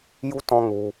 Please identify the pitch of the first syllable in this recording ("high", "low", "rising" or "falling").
high